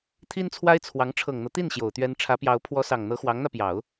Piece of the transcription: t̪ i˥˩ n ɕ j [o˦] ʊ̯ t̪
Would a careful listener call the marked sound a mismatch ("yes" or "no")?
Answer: yes